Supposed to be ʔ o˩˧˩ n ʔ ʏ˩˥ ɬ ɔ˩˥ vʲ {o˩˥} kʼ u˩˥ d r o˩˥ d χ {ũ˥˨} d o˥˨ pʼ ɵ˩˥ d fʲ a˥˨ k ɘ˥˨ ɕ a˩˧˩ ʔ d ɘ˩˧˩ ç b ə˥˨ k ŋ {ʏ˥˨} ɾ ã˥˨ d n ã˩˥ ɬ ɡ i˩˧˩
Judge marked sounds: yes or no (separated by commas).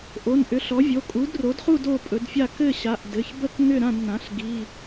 no, no, yes